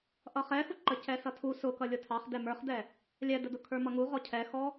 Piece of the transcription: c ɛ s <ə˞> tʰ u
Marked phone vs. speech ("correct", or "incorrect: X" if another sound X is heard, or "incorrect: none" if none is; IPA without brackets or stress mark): incorrect: ʌ